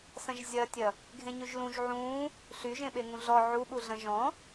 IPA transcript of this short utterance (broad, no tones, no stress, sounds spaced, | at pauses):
s ɐ̃ ʒ zʲ ɐ tʲ ɐ | ɡʱ ẽ ɲ ʉ ʒ l ũ ʒ ʕ ũ | ɬ y ʒ ẽ ɓ e ŋ ũ ɮ ɔ ʕ u ɓ u ɮ ɐ̃ ʒ ɔ̃